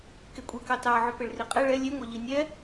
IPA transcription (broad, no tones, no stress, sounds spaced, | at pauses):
k e kʷʼ i k ɑ t ɑ ʕ ʏ p e ɭ r i qʼ ɛ ɭ ɛ lʲ e ŋʷ ɑ ʎ i nʲ ɛ